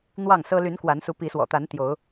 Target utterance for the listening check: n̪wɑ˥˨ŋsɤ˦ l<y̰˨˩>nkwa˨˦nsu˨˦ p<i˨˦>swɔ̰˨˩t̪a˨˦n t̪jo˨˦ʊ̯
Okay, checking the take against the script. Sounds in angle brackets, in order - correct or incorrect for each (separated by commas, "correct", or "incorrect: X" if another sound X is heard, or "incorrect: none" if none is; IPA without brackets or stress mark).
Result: incorrect: y˨˦, correct